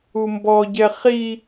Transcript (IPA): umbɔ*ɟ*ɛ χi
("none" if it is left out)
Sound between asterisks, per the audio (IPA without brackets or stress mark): ɟ